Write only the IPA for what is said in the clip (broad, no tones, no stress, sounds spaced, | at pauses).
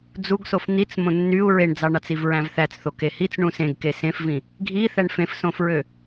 d͡z u ɡ s o f n̪ i t͡s m õ nː y u̯ ɹ e ɳ d͡z ɑ ɳ ɑ t͡s i v ɹ æ̃ v θ æ t͡s θ o k e h i t͡s ɳ ũ s ẽ ɡ k e s ẽ f v ĩ | ɡʱ i θ æ ɳ f ẽ f s õ f ɹ ø